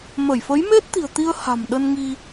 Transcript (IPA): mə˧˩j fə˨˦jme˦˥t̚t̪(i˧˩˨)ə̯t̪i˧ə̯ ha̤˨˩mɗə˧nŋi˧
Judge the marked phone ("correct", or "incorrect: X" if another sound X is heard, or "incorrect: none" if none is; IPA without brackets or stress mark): incorrect: i̤˨˩